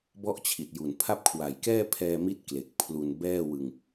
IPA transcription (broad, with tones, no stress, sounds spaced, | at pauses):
b ɔ˥˩ ʔ t͡ɕʰ i˨˩ t̚ j u˨˩ n pʰ a˥˩ p̚ kʰ w a˨˩ j k ɛː˥˩ pʰ ɛː˧ m i˦˥ t̚ k l e˨˩ k̚ pʰ l u˧ n b ɛː˥˩ w ɯ˧ ŋ